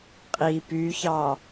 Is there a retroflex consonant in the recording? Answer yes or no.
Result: no